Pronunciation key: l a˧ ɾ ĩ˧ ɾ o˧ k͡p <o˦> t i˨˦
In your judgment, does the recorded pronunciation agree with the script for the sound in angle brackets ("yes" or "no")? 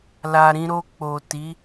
no